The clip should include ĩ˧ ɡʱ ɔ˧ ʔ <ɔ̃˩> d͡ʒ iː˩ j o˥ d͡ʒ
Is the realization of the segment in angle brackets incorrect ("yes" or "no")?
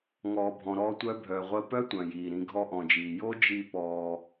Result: no